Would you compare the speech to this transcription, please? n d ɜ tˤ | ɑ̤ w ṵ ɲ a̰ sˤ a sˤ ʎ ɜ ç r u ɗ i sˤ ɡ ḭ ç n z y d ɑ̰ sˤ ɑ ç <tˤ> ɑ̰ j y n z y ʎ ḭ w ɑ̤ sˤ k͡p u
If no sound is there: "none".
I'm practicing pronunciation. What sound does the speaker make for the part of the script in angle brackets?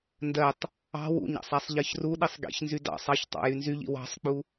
tˤ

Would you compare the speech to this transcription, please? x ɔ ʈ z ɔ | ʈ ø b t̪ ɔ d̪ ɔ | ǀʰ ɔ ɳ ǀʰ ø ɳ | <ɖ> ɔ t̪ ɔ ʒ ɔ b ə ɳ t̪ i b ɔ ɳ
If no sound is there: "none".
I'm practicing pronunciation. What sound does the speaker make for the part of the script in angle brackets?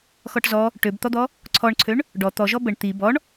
ɖ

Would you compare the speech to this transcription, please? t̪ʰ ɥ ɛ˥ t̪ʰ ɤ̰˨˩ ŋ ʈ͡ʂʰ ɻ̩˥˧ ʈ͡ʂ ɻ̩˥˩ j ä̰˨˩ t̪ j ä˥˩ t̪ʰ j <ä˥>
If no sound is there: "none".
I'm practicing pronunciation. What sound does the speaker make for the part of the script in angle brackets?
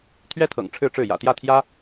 ä˥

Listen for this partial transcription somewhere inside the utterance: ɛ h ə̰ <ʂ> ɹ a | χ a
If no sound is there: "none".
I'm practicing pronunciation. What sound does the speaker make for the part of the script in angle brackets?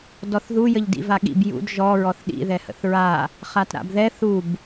θ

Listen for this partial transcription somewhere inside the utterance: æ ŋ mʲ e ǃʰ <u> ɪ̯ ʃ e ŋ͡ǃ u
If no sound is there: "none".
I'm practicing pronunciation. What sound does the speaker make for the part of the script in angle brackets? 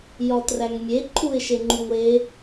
u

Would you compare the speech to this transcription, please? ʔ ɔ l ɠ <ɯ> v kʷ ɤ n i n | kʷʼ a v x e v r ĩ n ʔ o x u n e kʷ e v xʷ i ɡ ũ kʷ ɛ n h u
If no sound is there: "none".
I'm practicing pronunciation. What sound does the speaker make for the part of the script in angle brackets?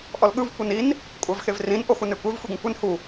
ɯ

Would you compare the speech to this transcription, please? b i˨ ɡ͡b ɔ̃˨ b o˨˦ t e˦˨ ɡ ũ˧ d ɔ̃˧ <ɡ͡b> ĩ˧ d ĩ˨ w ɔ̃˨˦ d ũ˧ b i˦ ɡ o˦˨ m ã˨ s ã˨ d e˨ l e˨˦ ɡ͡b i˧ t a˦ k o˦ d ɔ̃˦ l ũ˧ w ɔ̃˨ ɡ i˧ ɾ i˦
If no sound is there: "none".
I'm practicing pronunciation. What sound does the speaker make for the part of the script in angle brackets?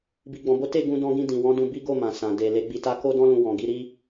ɡ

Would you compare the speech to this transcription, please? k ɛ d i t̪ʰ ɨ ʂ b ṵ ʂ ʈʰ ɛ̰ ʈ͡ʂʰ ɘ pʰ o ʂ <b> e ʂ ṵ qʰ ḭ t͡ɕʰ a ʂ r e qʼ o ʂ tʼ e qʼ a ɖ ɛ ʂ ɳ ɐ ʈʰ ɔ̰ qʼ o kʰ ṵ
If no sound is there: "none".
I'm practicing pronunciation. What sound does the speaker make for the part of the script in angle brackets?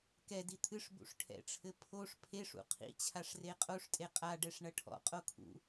pʰ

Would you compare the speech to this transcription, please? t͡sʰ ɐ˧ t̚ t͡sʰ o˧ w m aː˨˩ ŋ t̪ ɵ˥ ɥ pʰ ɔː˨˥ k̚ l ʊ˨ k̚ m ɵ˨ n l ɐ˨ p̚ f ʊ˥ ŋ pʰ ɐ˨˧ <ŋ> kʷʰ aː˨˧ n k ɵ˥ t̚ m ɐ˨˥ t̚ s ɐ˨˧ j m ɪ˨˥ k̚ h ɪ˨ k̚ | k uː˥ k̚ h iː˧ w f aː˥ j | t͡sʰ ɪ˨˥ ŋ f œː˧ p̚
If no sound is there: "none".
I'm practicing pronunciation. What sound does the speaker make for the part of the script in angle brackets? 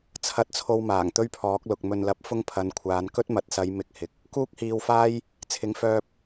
n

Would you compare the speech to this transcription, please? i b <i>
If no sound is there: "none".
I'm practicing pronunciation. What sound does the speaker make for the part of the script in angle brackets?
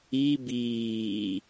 iː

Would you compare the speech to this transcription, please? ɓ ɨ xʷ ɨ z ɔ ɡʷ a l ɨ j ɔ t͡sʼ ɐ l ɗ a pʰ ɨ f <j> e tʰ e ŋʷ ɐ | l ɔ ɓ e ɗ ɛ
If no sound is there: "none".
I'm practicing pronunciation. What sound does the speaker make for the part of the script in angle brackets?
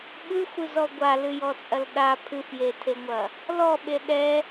j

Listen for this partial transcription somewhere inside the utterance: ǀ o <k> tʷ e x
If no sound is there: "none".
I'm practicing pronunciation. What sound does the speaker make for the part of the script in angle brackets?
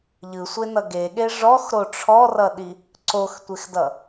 x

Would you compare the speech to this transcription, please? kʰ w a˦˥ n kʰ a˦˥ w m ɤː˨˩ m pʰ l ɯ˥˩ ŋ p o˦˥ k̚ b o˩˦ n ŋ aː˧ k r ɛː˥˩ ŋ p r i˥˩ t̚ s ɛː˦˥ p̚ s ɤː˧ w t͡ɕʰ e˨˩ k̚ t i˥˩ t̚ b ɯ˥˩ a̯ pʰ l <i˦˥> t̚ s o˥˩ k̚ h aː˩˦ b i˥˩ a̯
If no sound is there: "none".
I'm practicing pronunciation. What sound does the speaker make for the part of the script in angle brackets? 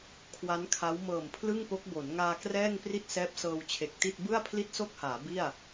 i˥˩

